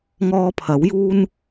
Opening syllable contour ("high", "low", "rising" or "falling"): high